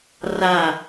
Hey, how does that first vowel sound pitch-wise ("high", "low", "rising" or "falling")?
falling